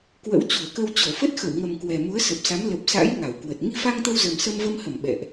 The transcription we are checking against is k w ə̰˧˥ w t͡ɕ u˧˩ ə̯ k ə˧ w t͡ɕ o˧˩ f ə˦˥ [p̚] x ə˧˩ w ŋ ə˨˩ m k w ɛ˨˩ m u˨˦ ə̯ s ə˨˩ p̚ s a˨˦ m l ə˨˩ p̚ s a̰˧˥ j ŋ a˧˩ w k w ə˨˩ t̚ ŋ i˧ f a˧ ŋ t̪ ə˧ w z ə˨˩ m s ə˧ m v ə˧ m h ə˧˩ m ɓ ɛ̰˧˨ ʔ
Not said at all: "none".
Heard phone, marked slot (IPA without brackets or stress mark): t̚